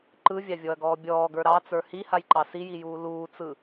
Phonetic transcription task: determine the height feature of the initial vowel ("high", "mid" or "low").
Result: high